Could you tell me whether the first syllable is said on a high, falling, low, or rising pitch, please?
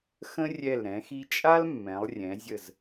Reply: high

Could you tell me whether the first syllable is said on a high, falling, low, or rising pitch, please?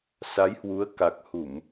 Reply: rising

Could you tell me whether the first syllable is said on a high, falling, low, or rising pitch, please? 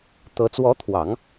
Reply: rising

